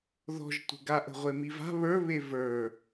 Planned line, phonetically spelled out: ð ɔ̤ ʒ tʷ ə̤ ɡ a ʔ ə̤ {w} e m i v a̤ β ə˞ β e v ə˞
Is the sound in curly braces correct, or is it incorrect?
incorrect